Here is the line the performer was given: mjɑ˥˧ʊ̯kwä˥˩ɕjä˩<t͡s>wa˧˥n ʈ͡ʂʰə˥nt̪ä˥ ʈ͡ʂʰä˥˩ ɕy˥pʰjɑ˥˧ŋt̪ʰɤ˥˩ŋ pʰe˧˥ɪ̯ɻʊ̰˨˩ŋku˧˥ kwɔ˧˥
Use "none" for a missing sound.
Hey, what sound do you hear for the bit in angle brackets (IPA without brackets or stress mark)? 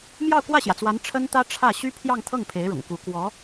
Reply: t͡s